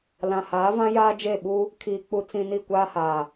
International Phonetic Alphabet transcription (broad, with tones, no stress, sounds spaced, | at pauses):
l ã˨ h aː˨˦ v ã˦ j aː˦ d͡ʒ e˦˨ ɓ u˦ | kʰ iː˨ k͡p u˨ t͡s ĩ˨ n i˦˨ kʷ aː˦ h aː˨